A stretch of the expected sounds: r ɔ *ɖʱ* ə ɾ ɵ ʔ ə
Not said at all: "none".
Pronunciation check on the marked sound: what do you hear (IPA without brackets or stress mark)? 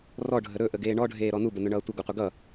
ɖʱ